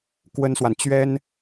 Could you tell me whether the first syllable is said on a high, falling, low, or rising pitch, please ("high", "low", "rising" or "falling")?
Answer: high